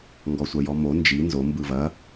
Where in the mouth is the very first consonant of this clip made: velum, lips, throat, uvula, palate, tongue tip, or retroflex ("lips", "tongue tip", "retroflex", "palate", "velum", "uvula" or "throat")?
velum